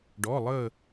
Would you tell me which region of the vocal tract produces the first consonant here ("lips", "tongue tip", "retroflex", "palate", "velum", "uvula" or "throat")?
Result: retroflex